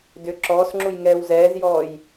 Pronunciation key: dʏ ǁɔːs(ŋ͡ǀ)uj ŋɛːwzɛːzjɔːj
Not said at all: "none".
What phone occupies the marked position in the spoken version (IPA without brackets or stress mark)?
ŋ͡ǁ